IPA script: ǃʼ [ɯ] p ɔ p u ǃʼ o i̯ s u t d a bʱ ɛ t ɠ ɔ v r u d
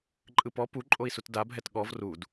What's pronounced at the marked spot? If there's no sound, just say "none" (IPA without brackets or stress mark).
ɯ